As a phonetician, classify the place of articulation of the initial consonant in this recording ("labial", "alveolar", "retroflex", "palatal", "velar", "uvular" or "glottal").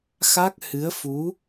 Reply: velar